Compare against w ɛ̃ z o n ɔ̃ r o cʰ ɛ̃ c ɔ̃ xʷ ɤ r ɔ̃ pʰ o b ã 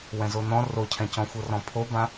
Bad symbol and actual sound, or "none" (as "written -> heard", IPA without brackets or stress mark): none